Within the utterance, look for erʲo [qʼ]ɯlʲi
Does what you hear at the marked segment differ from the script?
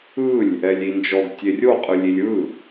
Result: no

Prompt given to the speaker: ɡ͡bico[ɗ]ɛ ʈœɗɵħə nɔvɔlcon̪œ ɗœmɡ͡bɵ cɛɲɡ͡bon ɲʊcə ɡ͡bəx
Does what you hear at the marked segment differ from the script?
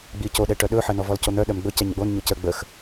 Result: no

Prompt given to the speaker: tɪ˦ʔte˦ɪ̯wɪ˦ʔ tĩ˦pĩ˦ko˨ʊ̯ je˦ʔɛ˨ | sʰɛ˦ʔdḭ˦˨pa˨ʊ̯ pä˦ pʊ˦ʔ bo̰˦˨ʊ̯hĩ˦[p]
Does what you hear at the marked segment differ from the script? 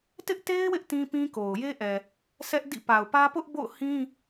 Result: yes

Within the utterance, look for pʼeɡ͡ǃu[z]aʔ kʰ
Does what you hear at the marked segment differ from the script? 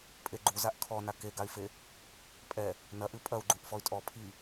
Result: no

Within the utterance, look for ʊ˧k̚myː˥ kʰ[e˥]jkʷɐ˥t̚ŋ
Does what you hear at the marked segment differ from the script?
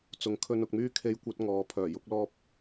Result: no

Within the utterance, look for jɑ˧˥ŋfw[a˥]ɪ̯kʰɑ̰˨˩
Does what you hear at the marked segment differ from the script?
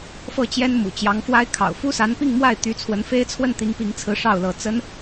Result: no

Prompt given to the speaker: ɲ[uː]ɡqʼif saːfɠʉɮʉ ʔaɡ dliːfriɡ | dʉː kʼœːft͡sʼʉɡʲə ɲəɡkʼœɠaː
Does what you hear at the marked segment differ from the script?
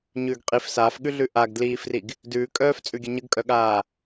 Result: yes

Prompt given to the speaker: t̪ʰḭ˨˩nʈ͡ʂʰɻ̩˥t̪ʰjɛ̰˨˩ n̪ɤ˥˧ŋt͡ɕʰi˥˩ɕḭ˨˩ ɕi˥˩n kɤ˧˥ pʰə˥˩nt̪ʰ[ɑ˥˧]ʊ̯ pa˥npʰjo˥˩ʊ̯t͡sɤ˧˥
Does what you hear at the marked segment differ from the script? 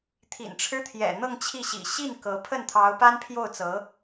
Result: yes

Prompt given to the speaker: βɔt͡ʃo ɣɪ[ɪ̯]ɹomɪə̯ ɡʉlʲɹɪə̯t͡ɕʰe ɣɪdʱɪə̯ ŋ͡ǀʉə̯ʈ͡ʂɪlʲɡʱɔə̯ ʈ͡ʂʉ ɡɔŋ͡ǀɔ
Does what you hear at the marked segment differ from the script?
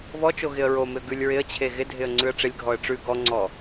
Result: yes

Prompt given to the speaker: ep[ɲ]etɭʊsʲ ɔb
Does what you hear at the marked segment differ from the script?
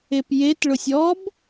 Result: yes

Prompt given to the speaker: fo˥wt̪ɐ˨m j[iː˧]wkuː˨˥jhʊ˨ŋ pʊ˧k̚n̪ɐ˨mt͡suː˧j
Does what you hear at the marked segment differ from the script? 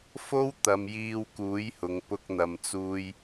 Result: no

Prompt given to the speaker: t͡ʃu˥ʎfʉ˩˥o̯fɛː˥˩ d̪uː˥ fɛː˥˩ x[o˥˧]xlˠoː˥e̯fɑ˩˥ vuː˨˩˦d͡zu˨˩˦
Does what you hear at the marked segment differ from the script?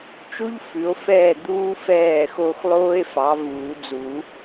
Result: no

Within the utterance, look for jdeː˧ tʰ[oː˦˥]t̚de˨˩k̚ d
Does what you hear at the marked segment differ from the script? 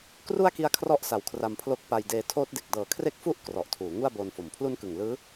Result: no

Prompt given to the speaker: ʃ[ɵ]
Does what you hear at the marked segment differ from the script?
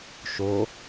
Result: yes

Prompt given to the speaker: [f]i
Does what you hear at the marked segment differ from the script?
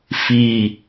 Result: no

